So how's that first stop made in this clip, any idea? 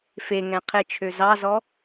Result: aspirated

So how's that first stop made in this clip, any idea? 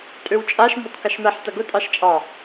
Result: ejective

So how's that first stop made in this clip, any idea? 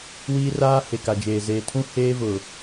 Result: plain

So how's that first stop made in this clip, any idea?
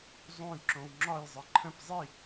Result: click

